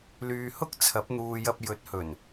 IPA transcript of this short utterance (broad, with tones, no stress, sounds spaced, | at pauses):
l yː˨ h ʊ˥ k̚ t͡sʰ ɐ˨˥ p̚ n̪ uː˨ j ɐ˧ p̚ j ɵ˨˥ t̚ h ɵ˨˩ n